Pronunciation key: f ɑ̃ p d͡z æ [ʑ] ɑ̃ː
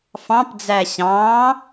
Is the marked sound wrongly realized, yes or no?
yes